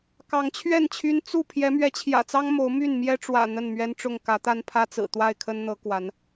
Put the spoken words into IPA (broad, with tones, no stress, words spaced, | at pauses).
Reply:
kɑ˨˦ŋt͡ɕʰɥɛ˥˨nt͡ɕʰy˦n t͡su˥˨ pʰjɛ˨˦mɥɛ˨˦t͡ɕʰjä̰˨˩t͡sɑ˦ŋ mo˨˦ʊ̯my˥˨n mjɛ˦ʈ͡ʂwä̰˨˩ n̪ə˥˨nmɥɛ˦nʈ͡ʂʊ˥˨ŋ kä˨˦t̪a˦npʰä˦t͡sɹ̩˨˩ t̪wa˥˨ɪ̯kʰə˦nn̪ɤ˨˦ kwa˨˦n